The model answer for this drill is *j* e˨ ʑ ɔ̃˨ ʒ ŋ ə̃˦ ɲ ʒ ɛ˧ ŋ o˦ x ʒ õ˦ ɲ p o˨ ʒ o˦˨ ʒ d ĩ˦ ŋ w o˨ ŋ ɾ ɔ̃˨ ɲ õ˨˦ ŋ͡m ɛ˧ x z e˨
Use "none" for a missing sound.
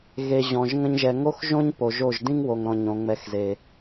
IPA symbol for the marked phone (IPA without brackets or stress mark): ɣ